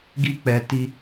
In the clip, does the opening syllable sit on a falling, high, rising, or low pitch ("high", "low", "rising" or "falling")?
high